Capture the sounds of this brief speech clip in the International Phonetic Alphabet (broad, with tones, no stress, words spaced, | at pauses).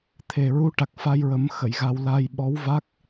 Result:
t̪ʰe˨˩ɹu˧˥ʈa˨˩k̚ fa˧jɹə˨˩˦mxə˨˩˨j ɣa˧w la˧jɓɔ˧˥wva˦˥k̚